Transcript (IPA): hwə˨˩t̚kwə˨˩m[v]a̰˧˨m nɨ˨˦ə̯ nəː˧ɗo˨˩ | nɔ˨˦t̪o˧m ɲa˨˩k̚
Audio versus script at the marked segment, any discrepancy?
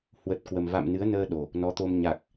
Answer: no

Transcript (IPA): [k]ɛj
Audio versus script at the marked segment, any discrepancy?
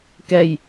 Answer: no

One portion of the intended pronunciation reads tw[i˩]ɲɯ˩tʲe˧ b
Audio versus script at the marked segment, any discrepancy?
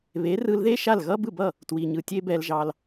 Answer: no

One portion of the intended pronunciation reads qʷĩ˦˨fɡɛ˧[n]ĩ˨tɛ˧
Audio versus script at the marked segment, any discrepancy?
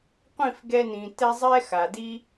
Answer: no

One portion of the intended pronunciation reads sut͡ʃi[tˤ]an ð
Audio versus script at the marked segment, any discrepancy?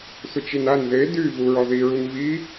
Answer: yes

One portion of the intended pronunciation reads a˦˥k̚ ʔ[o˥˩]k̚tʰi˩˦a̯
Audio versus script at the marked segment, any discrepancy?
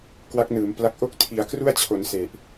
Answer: no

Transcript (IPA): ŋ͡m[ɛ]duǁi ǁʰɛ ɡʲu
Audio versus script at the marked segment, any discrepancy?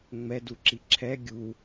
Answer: no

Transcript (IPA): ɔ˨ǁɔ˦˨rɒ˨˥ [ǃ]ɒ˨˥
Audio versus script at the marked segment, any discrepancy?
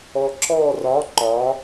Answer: no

